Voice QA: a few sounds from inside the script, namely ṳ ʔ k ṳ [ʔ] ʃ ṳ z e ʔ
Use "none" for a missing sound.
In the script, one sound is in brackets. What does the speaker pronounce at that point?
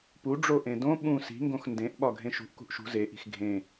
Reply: ʔ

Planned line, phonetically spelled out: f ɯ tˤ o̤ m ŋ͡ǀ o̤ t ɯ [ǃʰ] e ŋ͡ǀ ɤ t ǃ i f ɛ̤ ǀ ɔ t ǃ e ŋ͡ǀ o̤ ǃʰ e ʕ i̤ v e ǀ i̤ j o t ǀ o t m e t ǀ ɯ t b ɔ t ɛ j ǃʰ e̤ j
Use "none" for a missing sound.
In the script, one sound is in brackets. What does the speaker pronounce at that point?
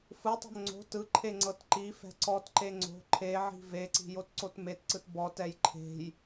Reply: ǃʰ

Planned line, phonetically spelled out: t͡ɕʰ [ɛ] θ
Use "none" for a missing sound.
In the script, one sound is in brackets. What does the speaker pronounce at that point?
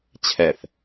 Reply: ɛ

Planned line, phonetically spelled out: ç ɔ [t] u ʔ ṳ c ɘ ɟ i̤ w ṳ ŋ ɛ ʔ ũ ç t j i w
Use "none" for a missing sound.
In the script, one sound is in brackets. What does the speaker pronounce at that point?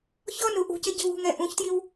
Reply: n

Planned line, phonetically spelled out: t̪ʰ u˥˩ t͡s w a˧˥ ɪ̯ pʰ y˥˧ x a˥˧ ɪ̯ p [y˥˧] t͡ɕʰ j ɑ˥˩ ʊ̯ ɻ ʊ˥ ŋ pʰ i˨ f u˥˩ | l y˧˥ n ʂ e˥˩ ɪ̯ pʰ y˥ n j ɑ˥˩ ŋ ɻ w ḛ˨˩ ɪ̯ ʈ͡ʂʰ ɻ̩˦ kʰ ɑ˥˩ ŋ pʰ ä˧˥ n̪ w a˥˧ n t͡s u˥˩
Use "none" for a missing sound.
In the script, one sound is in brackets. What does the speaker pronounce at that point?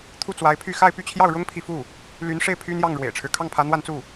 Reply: y˥˧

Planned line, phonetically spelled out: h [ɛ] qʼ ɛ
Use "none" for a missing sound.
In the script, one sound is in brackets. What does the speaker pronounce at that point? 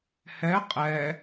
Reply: ɛ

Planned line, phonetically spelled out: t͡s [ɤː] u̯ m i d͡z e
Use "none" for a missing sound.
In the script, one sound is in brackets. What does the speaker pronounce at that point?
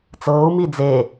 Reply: ɤː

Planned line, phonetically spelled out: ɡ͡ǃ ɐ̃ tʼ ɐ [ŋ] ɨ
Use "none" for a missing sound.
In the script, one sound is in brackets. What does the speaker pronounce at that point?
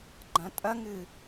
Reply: ŋ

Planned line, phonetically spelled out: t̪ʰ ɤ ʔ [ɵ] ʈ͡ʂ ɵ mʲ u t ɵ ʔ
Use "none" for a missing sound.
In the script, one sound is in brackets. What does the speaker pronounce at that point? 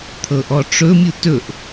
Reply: ɔ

